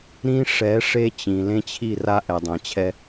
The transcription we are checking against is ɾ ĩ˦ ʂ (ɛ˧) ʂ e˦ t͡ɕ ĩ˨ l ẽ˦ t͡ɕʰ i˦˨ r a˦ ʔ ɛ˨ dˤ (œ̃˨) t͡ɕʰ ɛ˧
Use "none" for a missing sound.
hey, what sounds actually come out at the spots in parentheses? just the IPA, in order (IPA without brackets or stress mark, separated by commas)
ɛ˨˦, ɛ̃˨